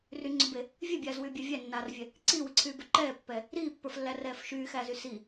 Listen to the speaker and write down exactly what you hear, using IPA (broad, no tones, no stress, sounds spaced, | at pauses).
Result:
r y ŋ͡ǀ ʏ b e | vʲ e bʲ aː z w yː bʲ a vʲ æ nː aː r vʲ ɛ | ǀ iː w i ǀʰ yː b ʏ ǃ ɛː pː ɛ | ɾ iː pː ə˞ f lː æ r ɛː f ʃ yː x æ z y s i